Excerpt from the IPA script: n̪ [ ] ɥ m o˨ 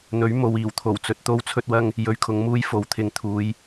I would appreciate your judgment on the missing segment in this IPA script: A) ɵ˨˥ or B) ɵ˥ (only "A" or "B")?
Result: A